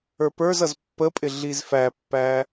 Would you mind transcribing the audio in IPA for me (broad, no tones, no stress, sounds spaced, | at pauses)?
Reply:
ə˞ p ə˞ z ʌ z pː ə pʼ ɪ ɮ i z f æ pː æ